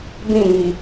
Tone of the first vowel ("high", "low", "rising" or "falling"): falling